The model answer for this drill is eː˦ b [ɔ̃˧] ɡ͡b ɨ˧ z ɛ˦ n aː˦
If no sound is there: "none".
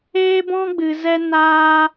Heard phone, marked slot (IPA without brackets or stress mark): ɔ̃˦